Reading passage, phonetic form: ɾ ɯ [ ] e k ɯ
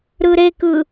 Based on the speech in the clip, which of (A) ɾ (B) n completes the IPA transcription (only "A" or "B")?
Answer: A